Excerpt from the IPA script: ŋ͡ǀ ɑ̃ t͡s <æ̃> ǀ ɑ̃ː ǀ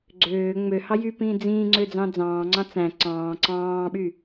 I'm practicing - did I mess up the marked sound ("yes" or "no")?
no